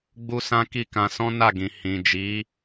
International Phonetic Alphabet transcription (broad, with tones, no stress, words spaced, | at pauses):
ɡ͡bu˦sã˦ ki˦˨kã˧sɔ̃˦ na˦˨ɡĩ˨ hĩ˨d͡ʒi˨˦